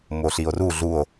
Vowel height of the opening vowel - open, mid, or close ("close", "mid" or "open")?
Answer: mid